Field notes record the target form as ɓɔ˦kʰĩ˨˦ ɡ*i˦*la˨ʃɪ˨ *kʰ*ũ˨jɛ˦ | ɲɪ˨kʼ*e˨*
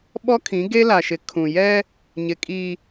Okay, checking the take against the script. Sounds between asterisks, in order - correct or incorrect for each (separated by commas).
incorrect, correct, incorrect